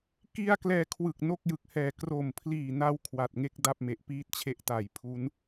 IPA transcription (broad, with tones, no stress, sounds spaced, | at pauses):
k i˥˩ a̯ k l ɛː˧ kʰ w ɯ˨˩ k̚ n o˥˩ k̚ j ɯ˨˩ k̚ h ɛː˨˩ k r o˨˩ m pʰ l iː˨˩ n a˧ w kʰ w a˨˩ t̚ ŋ e˥˩ k̚ d a˥˩ p̚ m e˨˩ ʔ p iː˥˩ t̚ t͡ɕʰ e˦˥ ʔ t aː˨˩ j pʰ u˦˥ n